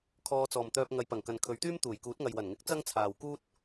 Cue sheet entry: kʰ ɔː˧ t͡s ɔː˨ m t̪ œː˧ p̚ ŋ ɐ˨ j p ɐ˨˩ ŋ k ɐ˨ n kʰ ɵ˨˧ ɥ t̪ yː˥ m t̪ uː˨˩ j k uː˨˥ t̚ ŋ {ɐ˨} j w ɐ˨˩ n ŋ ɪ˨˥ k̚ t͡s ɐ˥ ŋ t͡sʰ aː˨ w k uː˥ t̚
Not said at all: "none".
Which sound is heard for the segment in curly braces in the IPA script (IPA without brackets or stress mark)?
ɐ˨